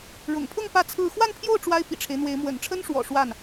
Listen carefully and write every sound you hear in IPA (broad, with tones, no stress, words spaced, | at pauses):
ɻʊ̰˨˩ŋpʰʊ˥˧ŋ pä˥˧t͡sʰɹ̩˥˧ xwa˥˧npʰjo˥˩ʊ̯ ʈ͡ʂwa˥ɪ̯pḭ˨˩ʈ͡ʂʰe˦ɪ̯n̪we˧˥ɪ̯ mwə̰˨˩nʈ͡ʂʰə˥nʂwɔ̰˨˩ ʂwa˥˩n